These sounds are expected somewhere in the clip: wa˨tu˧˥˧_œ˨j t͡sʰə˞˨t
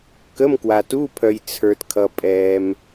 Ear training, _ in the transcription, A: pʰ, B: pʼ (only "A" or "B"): A